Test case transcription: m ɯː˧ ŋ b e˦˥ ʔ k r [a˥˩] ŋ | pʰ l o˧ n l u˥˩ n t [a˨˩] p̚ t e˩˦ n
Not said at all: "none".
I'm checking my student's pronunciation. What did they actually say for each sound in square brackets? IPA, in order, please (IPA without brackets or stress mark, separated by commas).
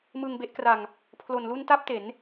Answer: a˧, a˥˩